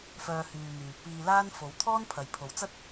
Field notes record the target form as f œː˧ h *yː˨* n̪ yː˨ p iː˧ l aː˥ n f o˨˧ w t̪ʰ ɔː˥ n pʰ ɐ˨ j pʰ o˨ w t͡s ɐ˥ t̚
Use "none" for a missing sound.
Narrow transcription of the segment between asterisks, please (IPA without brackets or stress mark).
yː˨